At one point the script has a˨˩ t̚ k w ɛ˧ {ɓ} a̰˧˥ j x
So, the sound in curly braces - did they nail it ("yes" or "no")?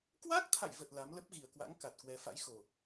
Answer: no